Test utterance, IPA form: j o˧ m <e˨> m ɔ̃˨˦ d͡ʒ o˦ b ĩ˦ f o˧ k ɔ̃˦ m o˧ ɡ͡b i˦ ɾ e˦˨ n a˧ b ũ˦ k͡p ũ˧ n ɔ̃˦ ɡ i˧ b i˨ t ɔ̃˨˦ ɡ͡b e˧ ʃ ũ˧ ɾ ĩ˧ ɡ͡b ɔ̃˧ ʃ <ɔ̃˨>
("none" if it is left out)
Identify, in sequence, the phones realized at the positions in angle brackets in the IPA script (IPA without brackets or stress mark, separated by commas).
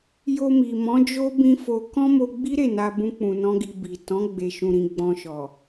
i˨, ɔ˨